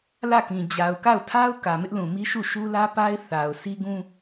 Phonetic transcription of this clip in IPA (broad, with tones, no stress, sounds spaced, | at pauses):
l ä˦˨ k ĩ˨ d͡ʑ a˨ ʊ̯ k a˦˨ ʊ̯ tʰ a˦ ʊ̯ k ä˨ m ɪ˦ ʔ l ũ˨ m i˦ ʃ u˦˨ ʃ u˦ l ä˦ p a˦ ɪ̯ θ a˨ ʊ̯ s i˦ ɡ ũ˦